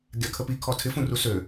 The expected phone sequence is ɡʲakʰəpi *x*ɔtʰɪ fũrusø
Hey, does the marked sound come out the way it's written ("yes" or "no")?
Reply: no